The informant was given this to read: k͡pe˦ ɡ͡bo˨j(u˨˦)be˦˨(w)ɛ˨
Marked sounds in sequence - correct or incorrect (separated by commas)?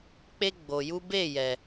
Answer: incorrect, incorrect